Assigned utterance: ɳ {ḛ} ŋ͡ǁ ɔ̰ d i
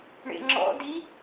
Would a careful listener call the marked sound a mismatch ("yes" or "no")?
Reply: no